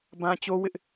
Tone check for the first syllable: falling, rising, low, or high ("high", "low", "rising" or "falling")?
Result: high